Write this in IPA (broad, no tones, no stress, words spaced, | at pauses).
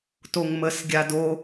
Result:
toŋməs ɡʲado